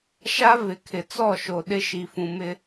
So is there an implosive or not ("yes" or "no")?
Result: yes